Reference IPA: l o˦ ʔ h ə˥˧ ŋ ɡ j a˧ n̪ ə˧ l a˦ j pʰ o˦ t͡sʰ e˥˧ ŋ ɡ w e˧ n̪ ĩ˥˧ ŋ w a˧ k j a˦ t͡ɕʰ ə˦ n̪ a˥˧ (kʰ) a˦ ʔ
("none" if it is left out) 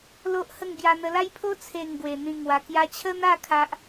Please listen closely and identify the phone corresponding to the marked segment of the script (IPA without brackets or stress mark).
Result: kʰ